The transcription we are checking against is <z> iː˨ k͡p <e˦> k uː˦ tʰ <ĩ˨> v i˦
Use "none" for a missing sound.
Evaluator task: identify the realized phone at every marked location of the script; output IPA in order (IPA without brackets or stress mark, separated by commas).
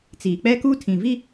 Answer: t͡s, ɛ˦, ĩ˨